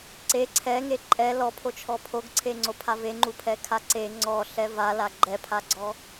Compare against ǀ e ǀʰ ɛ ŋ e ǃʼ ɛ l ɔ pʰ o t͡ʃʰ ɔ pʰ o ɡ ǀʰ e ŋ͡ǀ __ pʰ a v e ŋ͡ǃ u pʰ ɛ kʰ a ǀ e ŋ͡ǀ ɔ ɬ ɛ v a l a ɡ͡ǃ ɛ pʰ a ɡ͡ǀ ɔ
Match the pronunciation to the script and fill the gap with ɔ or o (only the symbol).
o